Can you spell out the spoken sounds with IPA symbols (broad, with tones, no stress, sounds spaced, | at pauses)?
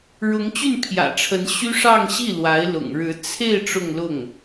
ɻ ʊ˧˥ ŋ t͡ɕ y˥˩ n pʰ j ä̰˨˩ ʈ͡ʂʰ ə˧˥ n ɕ y˥ ʂ ɑ˥˧ ŋ ɕ i˥˩ l w a˧˥ ɪ̯ l ʊ̰˨˩ ŋ ɻ ɻ̩˧˥ t͡sʰ e˥˧ ɪ̯ ʈ͡ʂ ʊ˥˧ ŋ l ʊ˥˩ ŋ